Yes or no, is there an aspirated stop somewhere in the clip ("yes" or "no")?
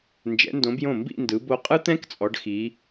no